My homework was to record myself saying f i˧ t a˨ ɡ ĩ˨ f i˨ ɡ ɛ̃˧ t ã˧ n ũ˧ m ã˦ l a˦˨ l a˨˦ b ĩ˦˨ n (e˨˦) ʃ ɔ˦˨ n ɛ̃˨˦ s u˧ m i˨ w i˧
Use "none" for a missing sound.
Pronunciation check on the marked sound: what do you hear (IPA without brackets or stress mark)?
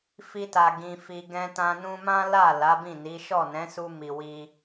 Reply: i˨˦